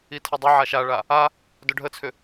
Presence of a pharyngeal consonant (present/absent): present